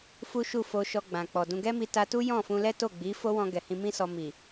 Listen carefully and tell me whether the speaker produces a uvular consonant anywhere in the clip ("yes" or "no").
no